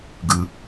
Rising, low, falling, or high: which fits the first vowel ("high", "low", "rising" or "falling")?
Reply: low